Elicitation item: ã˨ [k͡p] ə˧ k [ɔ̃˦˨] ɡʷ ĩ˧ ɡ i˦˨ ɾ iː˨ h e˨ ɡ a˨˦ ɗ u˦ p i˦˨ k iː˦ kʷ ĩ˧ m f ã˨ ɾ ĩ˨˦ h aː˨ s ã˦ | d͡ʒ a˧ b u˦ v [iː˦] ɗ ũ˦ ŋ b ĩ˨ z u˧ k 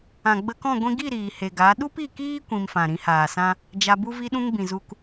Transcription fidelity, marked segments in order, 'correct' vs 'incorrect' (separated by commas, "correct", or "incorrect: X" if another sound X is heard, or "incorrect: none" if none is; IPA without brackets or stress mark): incorrect: ɡ͡b, correct, incorrect: i˦